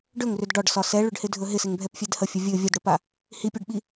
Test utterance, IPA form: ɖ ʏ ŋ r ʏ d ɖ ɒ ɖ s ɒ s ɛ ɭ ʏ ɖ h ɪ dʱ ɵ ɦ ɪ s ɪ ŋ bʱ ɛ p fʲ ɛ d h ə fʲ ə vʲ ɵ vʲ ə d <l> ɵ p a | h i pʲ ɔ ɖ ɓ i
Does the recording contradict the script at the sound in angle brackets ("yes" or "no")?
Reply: yes